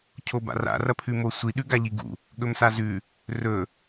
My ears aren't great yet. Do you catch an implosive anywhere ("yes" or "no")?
yes